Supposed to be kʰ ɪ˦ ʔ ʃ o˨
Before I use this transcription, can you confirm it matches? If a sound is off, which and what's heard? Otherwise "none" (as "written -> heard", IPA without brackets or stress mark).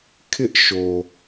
none